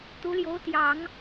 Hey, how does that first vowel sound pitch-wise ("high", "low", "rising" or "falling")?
rising